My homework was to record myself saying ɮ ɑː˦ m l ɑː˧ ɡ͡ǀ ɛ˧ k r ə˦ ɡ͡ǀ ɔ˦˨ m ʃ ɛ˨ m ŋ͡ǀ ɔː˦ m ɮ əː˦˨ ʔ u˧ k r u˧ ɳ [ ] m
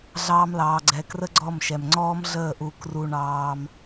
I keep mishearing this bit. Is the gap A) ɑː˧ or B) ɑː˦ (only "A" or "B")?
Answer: A